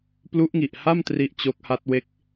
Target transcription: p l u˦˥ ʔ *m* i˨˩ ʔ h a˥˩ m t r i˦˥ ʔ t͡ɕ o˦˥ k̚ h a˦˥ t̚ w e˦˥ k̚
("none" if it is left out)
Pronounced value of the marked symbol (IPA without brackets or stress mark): ŋ